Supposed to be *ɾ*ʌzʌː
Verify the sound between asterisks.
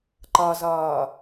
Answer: incorrect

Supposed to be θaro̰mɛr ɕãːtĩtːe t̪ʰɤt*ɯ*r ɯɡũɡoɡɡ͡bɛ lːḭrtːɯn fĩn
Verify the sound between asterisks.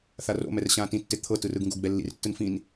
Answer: correct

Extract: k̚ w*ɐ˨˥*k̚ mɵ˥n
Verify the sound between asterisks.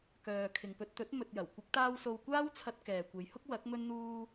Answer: correct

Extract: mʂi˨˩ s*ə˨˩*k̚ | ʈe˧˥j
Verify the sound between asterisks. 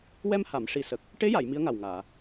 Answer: correct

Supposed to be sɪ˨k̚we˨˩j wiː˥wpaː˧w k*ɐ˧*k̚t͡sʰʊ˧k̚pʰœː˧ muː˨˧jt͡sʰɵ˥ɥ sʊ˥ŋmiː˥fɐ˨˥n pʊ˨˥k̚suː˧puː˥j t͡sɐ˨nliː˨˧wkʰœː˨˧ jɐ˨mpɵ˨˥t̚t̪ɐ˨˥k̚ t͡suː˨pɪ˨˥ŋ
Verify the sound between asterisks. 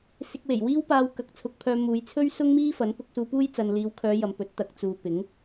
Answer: correct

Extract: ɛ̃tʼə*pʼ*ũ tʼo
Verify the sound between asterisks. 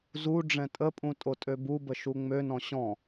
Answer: correct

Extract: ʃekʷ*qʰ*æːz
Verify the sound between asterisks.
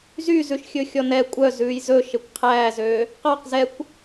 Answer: correct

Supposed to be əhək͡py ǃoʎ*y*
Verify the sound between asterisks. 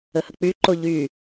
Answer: correct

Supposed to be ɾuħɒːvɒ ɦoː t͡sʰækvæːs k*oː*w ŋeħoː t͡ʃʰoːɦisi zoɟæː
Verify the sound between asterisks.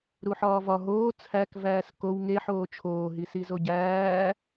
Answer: incorrect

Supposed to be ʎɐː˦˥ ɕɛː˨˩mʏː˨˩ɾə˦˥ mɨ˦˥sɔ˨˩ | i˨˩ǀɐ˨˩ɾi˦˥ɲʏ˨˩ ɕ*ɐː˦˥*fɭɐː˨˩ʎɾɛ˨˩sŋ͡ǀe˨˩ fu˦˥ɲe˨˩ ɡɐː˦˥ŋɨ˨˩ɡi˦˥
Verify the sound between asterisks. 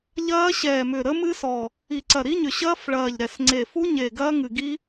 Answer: correct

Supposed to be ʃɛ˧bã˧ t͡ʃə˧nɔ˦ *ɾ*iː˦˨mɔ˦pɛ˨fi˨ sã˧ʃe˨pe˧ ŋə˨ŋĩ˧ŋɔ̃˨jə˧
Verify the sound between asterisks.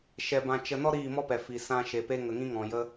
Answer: correct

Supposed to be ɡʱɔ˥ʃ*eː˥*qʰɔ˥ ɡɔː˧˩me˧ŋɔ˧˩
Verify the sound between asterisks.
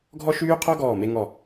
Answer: incorrect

